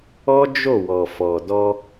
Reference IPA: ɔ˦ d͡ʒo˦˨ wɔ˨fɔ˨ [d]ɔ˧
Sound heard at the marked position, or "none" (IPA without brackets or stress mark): d